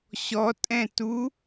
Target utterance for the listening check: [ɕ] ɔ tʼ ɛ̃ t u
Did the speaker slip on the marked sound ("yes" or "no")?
no